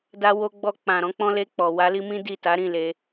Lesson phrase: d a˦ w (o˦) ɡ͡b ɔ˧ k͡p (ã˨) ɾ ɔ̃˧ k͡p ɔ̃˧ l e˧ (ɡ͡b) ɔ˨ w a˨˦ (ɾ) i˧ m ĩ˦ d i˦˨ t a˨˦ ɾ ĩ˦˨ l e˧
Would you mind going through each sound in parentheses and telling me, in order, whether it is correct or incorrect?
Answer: correct, correct, incorrect, incorrect

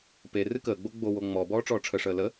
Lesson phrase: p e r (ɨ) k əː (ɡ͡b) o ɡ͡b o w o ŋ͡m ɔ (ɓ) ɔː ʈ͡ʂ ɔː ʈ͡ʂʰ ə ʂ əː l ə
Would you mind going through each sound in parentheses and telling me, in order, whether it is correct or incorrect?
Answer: correct, correct, incorrect

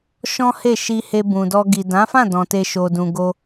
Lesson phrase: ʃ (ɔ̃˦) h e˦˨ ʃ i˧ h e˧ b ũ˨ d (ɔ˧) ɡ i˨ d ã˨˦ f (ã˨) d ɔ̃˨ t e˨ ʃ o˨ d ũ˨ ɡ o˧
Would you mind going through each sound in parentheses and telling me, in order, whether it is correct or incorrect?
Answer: correct, correct, incorrect

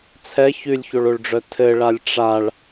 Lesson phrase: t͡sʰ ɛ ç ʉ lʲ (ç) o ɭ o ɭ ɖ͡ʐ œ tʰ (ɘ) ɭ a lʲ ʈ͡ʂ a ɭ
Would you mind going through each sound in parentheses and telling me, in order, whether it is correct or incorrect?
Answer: correct, correct

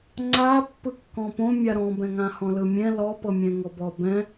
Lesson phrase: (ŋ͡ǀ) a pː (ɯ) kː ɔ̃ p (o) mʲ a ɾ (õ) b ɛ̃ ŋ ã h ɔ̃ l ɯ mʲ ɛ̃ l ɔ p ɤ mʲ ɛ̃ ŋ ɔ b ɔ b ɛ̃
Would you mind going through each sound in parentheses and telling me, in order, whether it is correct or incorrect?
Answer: correct, correct, incorrect, incorrect

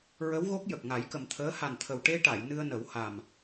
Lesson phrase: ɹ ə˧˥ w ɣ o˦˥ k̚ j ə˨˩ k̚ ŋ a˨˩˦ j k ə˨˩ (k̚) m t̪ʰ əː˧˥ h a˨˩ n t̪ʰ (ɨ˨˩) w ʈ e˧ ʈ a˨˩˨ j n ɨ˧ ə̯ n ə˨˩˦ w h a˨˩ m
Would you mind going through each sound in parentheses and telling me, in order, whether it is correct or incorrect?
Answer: incorrect, incorrect

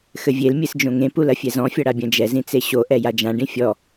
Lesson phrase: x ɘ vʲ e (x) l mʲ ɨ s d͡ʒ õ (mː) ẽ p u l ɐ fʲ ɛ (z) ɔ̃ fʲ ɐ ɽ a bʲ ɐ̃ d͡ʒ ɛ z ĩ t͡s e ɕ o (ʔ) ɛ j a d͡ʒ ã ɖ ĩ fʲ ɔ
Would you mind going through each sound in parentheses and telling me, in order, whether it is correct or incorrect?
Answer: incorrect, incorrect, correct, correct

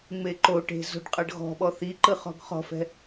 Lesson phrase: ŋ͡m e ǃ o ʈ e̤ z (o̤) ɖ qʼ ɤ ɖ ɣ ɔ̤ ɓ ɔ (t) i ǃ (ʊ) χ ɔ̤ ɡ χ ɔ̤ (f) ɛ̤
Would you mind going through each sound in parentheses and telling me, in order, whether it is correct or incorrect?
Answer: correct, incorrect, incorrect, correct

